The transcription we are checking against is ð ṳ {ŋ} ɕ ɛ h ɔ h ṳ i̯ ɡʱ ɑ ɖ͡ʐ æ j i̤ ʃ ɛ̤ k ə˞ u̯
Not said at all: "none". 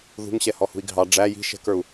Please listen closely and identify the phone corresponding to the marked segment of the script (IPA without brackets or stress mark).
ŋ